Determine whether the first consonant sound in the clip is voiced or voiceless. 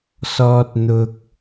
voiceless